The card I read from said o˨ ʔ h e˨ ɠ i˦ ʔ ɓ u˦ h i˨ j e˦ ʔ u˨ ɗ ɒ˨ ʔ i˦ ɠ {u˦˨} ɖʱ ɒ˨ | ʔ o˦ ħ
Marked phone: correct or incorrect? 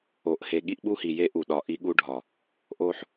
incorrect: u˦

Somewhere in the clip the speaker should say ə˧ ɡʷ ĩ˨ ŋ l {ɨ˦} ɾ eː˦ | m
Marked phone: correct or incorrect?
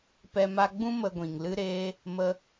correct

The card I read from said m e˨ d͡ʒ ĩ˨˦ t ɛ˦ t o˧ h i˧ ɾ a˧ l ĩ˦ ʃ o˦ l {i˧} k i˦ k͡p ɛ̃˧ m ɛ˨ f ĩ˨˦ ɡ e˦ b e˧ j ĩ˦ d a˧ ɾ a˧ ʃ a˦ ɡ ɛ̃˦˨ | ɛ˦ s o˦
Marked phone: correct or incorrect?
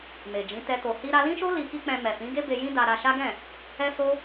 correct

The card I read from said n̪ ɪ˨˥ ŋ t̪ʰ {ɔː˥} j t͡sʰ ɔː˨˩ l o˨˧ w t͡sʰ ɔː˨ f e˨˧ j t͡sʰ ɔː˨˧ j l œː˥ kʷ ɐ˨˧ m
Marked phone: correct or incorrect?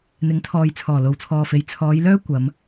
incorrect: ɔː˨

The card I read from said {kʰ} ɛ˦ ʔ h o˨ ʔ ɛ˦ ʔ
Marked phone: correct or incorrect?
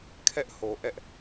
correct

